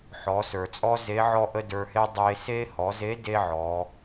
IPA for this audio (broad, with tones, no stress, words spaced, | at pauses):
ħɔ˩˧sə˞˩t͡sʼɔ˥ ze˧˥ʕɔ˥ʔə˥ də˞˧he˥ dˤe˧se˥ hɔ˩˧ze˧˥ de˥ʕɔ˩˧